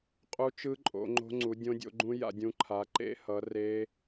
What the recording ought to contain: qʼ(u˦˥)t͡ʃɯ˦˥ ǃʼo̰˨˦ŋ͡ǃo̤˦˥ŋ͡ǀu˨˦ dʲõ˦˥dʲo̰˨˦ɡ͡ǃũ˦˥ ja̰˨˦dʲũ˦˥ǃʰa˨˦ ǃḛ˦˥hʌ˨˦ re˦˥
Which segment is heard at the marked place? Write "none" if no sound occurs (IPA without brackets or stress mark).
u˦˥